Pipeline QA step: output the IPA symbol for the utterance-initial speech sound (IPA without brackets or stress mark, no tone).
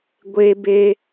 ɡʷ